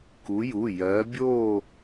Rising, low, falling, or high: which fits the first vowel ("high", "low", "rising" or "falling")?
rising